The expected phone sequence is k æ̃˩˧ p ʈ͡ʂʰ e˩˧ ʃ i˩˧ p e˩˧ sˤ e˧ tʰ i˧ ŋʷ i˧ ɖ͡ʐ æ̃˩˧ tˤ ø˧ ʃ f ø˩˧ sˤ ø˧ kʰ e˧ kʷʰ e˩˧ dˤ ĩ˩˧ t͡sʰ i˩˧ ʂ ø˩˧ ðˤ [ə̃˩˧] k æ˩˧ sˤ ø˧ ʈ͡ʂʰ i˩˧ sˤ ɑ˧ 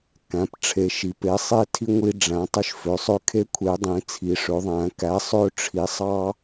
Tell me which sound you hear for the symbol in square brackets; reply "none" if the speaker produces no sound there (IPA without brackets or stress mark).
æ̃˩˧